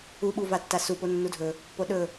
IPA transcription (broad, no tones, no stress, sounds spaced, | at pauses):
u ɓ u v a tː a s u p o nː u dʱ ɵ | p o ɗ ɵ